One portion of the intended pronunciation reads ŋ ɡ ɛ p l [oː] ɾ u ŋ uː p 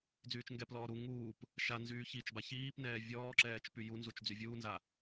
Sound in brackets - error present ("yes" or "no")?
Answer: yes